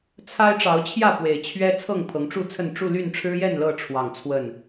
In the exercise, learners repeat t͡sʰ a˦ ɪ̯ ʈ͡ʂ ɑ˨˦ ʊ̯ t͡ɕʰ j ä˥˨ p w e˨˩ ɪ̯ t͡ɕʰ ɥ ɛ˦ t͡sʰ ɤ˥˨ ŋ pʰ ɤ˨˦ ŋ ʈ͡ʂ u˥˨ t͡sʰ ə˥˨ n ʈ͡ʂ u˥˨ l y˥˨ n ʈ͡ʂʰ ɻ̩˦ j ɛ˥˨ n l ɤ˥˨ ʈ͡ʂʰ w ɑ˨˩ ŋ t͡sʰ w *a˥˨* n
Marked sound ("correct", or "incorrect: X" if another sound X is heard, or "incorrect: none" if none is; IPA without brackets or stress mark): incorrect: ə˥˨